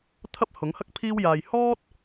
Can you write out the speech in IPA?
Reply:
t̪ʰɐ˥p̚hʊ˨˥ŋhɐ˥k̚ pʰiː˥wjaː˧j hɔː˥t̚

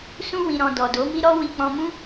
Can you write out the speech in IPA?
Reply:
sũ˧wĩ˨ɾɔ̃˨ dɔ˨do˨˦mi˦ɾɔ˦ wi˧k͡pɔ̃˧mũ˦

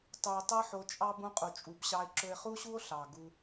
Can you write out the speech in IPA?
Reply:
tˤu˨o̯tˤɤ˦ħo˧t͡ʃʼɑ˦ bũ˦qʼu˨t͡ʃʼu˨˦bɕɑ˦e̯ ǁɵ˧e̯χu˦ɕu˦o̯ ɬɑ˨ɡu˧

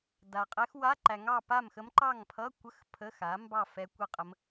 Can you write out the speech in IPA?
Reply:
da˨qʼɛ˧˥x wa˧˥˧ǃæ˨ŋɑ˥˨ pa˥˨mxə˧˥mǃɑ˥˨ŋ pʰʌ˧˥˧kʷə˧˥˧x pʰə˧˥˧xa˩˥mbɑ˥˨ fɛ˧˥kʷə˥˨ qʼə˧˥m

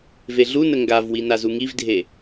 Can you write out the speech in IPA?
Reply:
veɮunə ŋɡavwi nazuŋivdʱe

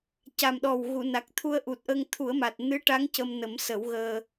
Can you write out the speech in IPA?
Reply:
ca˨˩mɗɔ˨˩wɣu˨˩˨na˨˩k̚ t̪ʰu˧ə̯ʔu˨˩t̚ʔə˧ŋ t̪ʰu˨˩˦ə̯ma˨˩t̚ nɨ˧˥ʈa˧˥ŋ cə˧mnə˨˩˦msə˨˩˦wɣəː˧

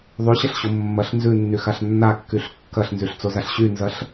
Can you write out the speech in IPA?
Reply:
ðˤyɕɐɬɕo mːɐɬ nzʉnːyxaɬ nːakːyɬ kːɐɬnzyɬt͡sozaɬ ɕynzɐɬ

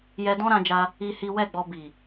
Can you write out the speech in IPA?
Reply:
jɛ˧dɔ̃˦ɾã˧d͡ʒa˧ | i˦hi˦ wɛ˦˨ɡ͡bɔ˧ bi˨

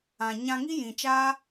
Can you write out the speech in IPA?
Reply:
ã˨ ɲã˧ŋi˦ jĩ˨t͡ʃaː˦

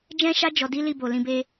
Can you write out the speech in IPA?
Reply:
d͡ʒɛ̃˦ʃa˦ d͡ʒɔ˧di˦li˦˨ bo˨lĩ˧be˦

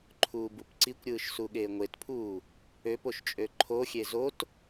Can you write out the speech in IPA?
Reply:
ǃʰuːbupǀikʷɾʲɯːʃ suɠeːŋʷetpʰuː | øpoʃt͡ʃʼø ǃʰoxʲe zot

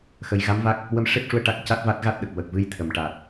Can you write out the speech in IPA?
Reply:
xə˨˩jɣa˧˥mva˦˥k̚ | wə˧˥mʂe˦˥p̚ʂu˧ə̯ ʈa˦˥k̚ca˦˥t̚va˦˥t̚ ɣa˦˥t̚ɗə˨˩k̚wə˨˩k̚ vɨ˧jt̪ʰə˨˩m ʈa˨˩t̚

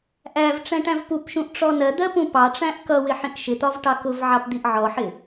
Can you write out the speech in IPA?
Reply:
ʔæv ʈ͡ʂɛ̃ʈæ̃vpupʃũʔ ʈ͡ʂɔnɜd̪ɜ pũpɑʈ͡ʂæ̃ʔ kʌwɪ ħĩʔʃɪt̪ɒv ʈɑkʊvʕɑp d̪iʔʕɔħɪ

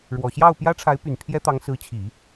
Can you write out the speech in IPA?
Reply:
ɻwɔ˨˩ɕjɑ˥˩ʊ̯pjä˥ ʈ͡ʂʰa˧˥ɪ̯py˨˩n pʰjɛ˥t̪ɑ˧˥ŋ sɹ̩˧˥t͡ɕʰi˨˩˦

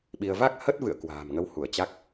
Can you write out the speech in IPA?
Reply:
ɓi˧ə̯ va˦˥k̚ hə˦˥t̚vɨ̰˧˨ə̯ kwa̤ː˨˩mŋə˨˦w hu˧˩ə̯t͡ɕa˦˥k̚

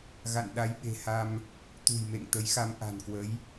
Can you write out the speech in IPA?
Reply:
ɣa̰˧˨nɗa˨˦jɓe̤˨˩ha˧m | t̪ṳ˨˩jmḛ˧˨ŋt̪ə˨˦jxa˧m ʔa̤˨˩nkwə˨˦j

